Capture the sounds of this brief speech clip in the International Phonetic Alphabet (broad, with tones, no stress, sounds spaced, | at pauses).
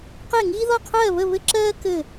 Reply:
q e˥˧ ŋ iː˥ ð ɔ˥˧ qʰ ɜː˥˧ β ə˥˧ β ɘ˥ ǁ ɜː˥ k ɘ˥˧